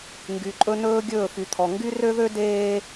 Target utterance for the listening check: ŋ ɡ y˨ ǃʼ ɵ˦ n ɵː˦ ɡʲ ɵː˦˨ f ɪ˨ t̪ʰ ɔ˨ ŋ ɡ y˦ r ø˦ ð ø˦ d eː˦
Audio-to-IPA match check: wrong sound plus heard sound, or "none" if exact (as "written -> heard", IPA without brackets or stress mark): ɪ˨ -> y˨